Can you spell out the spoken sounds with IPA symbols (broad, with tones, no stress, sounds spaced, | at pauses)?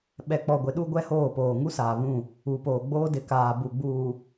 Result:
ɓ ɛ˨ k͡p ɔ˨ ɡʷ ɪ˨ ɗ u˦ ɡʷ ɛ˦ h oː˦˨ p oː˨ ŋ u˦ s aː˨ β ũ˦˨ | u˨ p oː˨ ɡ͡b oː˦ d ɪ˨ k aː˨ b u˨ ɡ͡b uː˨